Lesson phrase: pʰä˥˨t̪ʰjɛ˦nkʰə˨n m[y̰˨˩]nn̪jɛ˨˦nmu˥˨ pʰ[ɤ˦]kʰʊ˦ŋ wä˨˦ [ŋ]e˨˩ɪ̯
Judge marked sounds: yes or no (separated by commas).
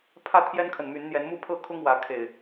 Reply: no, no, no